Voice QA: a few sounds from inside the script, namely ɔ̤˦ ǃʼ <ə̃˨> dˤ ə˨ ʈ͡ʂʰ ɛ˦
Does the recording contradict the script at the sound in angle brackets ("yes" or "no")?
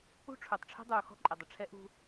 yes